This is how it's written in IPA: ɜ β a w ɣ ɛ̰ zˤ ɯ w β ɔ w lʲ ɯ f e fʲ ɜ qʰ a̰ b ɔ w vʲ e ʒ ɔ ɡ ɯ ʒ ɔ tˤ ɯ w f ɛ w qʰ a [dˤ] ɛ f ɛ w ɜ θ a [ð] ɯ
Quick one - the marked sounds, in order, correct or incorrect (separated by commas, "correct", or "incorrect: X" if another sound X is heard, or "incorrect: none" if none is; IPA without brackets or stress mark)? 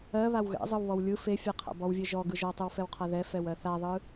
incorrect: ð, incorrect: ðˤ